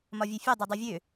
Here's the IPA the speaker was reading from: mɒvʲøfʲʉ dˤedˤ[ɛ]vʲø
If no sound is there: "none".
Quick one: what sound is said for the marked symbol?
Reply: ø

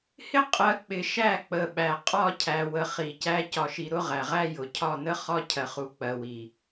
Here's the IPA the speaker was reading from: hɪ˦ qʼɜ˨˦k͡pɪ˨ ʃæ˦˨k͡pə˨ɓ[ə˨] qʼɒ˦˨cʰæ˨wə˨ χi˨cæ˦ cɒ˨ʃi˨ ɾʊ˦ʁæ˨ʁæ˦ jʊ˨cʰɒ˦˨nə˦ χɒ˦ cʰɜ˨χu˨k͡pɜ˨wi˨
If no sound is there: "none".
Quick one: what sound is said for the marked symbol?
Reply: æ˨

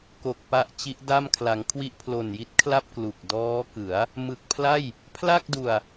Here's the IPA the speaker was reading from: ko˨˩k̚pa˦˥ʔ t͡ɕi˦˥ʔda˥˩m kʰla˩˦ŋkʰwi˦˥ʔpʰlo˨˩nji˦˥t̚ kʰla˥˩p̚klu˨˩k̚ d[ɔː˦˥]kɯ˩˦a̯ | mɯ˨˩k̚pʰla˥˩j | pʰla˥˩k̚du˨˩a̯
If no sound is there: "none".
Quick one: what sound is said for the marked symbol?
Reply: ɔː˦˥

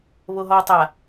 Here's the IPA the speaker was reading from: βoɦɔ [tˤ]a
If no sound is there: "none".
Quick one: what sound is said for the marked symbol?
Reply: tˤ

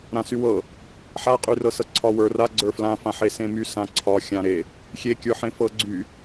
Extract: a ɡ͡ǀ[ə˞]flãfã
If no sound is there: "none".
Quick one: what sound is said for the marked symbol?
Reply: ə˞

